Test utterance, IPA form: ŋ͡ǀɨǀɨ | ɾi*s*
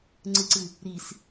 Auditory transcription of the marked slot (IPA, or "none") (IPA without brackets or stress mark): s